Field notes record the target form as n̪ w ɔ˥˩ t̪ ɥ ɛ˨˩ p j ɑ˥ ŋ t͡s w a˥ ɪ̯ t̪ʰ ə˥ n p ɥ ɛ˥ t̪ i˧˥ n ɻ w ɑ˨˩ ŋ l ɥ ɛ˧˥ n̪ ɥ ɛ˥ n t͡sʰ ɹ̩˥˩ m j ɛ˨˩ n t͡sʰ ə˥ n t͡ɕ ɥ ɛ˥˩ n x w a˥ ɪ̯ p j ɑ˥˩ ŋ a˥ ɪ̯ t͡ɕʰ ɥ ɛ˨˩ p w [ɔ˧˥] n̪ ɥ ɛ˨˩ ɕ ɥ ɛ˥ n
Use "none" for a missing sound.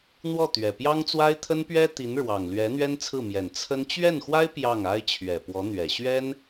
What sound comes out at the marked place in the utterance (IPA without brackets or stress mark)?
ɔ˧˥